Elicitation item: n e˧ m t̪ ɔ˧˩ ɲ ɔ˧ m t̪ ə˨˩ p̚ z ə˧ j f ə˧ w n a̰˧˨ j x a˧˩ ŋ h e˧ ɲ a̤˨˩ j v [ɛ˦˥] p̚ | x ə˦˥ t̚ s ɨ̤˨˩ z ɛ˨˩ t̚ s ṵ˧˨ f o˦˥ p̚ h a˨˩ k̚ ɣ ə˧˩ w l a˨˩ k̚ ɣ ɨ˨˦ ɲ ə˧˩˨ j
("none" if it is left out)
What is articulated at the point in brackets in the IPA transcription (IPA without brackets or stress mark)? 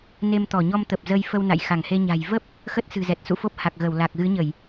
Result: ə˦˥